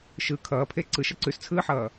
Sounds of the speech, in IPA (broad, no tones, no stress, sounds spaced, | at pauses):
ʃ ɯ kʰ ʌː pʰ e ǀ ɯ ʃ ʌ ǀ ʉ s t͡sʰ ɯː ħ ʌː